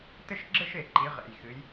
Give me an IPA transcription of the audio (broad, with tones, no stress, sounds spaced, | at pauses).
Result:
t ɘ˥˧ ʃ ɡ͡ǁ ɘ˥˧ ʃ e˨˩ ǃ i˩˧ ʁ ḛ˨˩ j x ɨ˩˧ j